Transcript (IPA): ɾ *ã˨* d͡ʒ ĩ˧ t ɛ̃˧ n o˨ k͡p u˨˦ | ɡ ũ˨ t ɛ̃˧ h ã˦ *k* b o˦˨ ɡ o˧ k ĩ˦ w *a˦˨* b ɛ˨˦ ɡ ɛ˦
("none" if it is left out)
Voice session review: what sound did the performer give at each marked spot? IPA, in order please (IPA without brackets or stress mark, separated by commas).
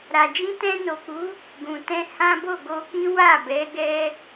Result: a˨, none, a˦˨